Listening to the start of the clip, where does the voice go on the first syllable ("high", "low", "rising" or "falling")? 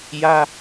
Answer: high